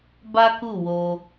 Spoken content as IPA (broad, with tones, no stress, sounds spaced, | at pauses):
b a˦ k u˦˨ w o˧